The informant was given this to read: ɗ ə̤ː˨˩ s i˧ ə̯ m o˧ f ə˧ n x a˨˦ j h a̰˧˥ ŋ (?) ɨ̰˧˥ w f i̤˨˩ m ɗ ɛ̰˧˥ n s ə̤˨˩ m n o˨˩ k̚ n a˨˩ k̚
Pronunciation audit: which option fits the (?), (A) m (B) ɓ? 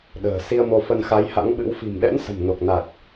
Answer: B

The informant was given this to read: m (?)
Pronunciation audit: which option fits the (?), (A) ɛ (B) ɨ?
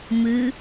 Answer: B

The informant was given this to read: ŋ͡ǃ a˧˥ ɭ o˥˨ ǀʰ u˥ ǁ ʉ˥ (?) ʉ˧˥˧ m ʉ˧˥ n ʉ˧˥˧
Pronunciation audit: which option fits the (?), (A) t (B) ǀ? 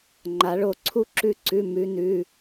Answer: B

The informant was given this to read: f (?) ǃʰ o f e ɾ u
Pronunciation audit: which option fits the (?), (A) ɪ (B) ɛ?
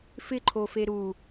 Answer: A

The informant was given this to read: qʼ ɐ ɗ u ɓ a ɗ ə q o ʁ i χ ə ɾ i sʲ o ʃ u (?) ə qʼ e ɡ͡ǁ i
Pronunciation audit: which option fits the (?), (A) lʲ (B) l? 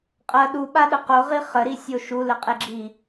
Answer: B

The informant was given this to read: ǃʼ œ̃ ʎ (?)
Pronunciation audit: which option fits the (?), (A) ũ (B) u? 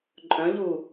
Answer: B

